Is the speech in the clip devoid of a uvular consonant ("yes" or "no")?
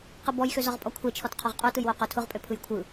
no